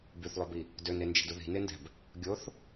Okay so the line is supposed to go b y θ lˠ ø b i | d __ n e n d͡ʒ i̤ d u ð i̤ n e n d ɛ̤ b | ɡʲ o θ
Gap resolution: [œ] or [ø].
ø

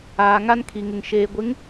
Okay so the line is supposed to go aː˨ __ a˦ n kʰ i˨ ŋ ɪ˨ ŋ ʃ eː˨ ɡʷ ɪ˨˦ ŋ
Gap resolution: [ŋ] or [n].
ŋ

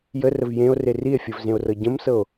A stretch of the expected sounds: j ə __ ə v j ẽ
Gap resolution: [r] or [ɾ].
r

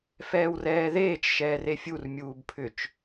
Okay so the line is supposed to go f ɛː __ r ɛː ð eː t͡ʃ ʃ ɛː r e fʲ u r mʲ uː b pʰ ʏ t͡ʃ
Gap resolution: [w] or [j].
w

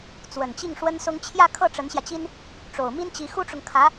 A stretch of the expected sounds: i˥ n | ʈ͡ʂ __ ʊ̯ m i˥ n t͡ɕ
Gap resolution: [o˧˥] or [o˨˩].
o˨˩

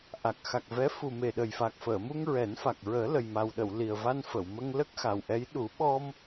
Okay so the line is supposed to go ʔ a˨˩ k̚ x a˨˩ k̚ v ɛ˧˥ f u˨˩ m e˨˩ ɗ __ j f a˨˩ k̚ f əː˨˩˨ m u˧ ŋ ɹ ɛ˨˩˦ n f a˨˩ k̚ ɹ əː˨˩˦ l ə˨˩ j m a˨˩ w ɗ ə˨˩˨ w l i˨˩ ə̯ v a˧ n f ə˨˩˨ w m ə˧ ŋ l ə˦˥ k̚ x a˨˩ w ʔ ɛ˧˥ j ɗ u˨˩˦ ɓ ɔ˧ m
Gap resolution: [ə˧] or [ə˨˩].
ə˨˩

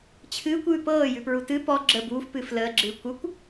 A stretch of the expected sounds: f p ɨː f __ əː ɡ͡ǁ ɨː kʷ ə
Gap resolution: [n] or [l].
l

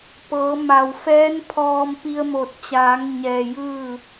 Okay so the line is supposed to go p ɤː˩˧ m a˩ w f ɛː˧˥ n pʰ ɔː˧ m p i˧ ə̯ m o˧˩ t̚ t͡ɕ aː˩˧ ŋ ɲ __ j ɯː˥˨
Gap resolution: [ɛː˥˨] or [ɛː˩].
ɛː˩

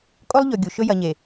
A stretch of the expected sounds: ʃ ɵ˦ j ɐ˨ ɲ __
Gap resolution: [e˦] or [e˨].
e˨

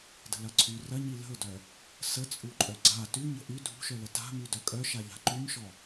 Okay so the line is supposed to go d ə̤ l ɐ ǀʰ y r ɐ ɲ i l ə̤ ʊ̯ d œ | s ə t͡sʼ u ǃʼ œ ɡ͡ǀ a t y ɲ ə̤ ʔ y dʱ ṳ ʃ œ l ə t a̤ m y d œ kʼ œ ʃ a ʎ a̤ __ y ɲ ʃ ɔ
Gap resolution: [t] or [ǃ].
ǃ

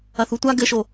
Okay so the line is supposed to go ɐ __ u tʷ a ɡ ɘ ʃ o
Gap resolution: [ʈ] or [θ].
θ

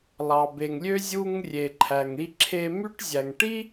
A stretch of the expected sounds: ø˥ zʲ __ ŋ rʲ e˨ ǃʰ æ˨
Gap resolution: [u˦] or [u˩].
u˦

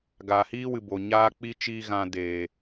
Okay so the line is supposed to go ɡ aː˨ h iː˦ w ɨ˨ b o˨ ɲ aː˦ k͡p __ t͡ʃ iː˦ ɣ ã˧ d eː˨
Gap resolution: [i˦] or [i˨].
i˦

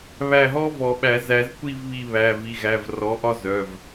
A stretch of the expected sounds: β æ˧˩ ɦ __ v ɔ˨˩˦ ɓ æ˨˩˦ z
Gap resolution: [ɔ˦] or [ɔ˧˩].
ɔ˦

